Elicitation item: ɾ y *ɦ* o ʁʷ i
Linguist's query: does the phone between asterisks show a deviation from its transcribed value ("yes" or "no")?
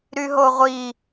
no